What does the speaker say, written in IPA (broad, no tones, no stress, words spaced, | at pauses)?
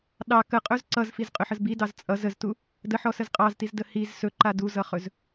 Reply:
ɗɑ kəqʼɵz ǀʌzfizqʼɵħəz bidɑz t͡sʼʌz əztu | dəħɔsəz qʼɑztizdə hiz sɵǃa duzʌχɵz